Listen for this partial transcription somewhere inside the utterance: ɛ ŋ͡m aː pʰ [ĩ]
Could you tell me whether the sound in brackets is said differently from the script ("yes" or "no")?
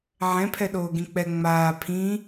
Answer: no